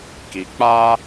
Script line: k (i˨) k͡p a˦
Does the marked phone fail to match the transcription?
no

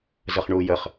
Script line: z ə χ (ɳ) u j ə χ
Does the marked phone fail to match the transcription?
no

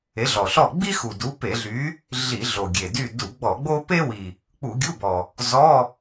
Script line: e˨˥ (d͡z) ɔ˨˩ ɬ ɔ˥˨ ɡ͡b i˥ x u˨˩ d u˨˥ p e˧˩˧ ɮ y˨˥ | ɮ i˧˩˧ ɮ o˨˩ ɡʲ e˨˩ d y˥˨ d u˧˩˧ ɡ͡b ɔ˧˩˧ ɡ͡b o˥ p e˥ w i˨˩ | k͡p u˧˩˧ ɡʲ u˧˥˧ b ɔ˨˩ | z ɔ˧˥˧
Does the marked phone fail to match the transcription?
yes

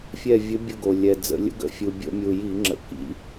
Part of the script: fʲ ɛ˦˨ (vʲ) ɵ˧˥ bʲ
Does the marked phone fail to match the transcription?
no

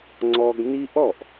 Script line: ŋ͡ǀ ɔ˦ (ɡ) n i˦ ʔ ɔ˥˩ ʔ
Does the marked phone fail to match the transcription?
no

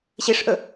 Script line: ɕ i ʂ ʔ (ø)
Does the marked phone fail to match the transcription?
yes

